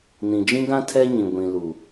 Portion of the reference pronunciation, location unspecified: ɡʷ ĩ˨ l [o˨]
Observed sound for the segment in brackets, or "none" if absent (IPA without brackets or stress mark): u˨